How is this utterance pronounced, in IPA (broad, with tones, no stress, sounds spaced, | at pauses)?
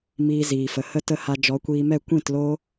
m iː˧ z iː˨ f ə˨ h ə˦ t ə˦ h a˧ d͡ʒ ɔ˨˦ kʷ iː˧ m ɛ˦˨ kʷ ĩ˦˨ t l o˦